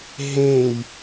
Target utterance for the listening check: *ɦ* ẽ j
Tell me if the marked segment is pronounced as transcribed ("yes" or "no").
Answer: yes